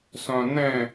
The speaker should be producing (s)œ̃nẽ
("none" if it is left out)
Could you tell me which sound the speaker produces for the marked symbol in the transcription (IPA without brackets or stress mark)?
s